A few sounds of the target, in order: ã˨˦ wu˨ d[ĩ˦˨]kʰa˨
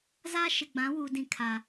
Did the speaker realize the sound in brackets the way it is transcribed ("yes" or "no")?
yes